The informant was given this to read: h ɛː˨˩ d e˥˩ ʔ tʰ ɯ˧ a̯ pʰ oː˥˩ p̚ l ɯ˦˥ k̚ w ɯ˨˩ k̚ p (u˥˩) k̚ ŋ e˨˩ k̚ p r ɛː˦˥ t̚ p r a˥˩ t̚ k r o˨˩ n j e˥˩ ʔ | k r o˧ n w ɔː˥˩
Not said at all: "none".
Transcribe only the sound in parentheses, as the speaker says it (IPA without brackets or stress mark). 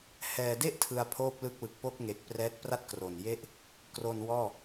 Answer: o˥˩